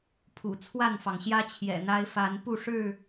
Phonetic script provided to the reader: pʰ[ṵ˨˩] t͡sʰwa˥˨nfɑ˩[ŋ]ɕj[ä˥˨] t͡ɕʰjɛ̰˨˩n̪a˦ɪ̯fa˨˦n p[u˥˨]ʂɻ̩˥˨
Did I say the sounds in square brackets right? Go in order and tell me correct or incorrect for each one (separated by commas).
correct, correct, incorrect, correct